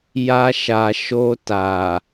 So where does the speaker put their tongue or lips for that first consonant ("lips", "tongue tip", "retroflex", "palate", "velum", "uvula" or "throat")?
palate